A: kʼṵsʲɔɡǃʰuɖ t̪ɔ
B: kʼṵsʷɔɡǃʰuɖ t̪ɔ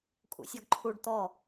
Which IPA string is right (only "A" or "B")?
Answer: A